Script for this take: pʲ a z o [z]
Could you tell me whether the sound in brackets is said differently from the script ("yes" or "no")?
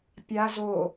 yes